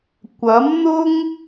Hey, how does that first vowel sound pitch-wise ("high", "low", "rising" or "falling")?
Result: rising